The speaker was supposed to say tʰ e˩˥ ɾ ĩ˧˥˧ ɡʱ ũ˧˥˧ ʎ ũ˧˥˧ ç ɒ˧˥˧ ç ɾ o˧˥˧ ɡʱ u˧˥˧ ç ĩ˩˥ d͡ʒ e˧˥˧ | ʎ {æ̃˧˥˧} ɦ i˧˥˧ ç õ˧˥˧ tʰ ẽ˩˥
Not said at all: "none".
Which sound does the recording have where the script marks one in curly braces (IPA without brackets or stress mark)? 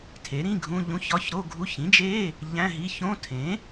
æ̃˧˥˧